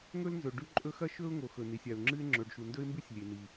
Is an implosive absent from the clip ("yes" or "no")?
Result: yes